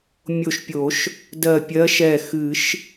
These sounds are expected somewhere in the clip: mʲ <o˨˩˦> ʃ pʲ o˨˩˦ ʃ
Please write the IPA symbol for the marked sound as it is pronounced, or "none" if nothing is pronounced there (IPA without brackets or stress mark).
o˧˩